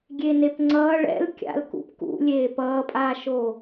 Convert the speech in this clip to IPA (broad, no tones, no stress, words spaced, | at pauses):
ɡʲenepŋ͡ǀʌː ɭɛ̰l kʲa̰l kṵp kṵlʲeː pʌːpʼaːʃoː